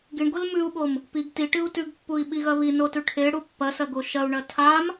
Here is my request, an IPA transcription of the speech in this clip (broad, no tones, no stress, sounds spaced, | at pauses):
ɡ i ɳ ɡ o l m ʉ u̯ ɓ o m | p i ɡ t i ʈ ɨ u̯ t ʉ ɡ pː u i̯ ɓ i ɣ ɐ β i n o t ʉ ʈʰ e ɽ u pː ɐ s ɐ ɡ o ʃ ɐ u̯ ɳ ɐ tʰ a m